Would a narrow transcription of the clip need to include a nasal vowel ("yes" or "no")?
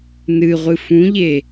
yes